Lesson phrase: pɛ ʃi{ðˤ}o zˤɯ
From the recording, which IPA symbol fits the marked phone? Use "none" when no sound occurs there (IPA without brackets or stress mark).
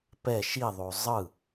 ðˤ